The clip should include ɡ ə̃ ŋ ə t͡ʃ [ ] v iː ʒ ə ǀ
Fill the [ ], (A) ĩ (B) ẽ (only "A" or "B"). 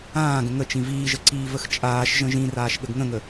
A